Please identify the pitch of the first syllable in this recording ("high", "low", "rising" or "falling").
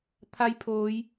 rising